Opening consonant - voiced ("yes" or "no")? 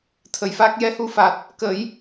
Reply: no